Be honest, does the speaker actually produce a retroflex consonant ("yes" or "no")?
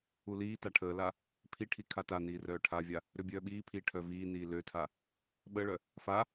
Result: yes